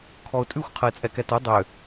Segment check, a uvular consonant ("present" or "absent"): present